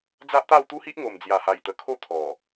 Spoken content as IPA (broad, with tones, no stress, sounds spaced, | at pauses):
d͡z a˦ ʔ t̪ a˥˧ w t̪ u˦ h i˦ ʔ ŋ o˨˩ m d͡z j a˨˩ h a˨˩ j t̪ ə˨˩ kʰ o˥˧ t̪ʰ ɔ˨˩